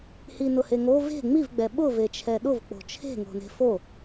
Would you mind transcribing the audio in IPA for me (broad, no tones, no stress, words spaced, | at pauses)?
hinʊheŋo ve̤ ŋ͡mivɡ͡bɛ ɓʊvet͡ʃʰɛ ɗʊvk͡po̤ t͡ʃʰe̤ŋo̤ ne̤fo